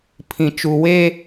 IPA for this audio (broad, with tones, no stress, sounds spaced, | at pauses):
pʰ ĩ˨ t͡ʃ u˨ w e˦